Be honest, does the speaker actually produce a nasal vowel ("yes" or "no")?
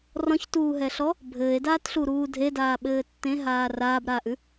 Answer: yes